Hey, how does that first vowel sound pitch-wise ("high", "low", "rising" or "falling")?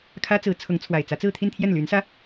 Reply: high